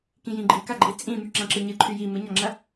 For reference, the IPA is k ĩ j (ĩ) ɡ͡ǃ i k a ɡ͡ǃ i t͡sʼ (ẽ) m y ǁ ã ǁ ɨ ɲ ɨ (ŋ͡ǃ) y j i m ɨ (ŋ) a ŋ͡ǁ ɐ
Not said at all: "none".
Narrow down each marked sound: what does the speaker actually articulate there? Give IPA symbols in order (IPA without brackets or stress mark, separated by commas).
ĩ, ĩ, ǃʰ, ɲ